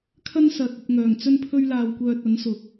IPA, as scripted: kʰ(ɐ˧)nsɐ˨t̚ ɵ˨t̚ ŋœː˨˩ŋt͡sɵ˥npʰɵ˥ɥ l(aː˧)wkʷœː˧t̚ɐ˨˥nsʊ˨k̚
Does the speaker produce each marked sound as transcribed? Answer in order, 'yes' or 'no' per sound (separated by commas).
no, yes